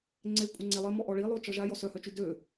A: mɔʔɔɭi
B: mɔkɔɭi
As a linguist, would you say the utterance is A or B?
A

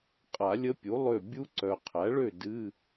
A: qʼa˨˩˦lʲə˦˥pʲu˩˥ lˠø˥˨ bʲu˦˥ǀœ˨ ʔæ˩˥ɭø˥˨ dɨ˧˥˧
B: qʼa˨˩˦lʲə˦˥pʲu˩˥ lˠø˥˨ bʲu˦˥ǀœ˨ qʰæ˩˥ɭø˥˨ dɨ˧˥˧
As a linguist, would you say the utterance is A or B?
B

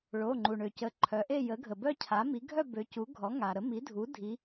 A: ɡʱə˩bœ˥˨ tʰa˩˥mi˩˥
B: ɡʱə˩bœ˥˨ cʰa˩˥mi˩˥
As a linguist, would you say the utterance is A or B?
B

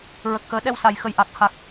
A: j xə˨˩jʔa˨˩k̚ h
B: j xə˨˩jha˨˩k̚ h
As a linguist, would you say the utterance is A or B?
A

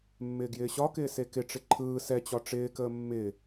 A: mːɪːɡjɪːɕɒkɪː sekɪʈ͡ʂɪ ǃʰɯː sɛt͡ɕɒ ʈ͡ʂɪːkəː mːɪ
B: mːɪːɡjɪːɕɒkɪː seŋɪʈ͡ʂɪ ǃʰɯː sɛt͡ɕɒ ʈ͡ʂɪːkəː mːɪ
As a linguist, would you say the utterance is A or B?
A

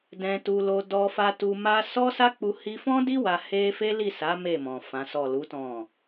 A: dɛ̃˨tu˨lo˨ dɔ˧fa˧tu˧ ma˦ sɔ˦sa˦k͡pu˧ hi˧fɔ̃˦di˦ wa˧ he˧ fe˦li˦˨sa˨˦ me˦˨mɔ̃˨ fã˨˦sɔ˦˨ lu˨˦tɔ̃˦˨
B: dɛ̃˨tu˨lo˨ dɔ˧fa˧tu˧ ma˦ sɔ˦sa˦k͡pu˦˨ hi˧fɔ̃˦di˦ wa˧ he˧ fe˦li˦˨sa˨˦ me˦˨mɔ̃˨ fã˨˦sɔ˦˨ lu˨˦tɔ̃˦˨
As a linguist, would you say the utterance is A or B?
A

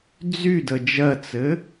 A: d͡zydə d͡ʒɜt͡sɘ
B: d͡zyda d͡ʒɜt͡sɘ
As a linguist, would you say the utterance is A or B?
A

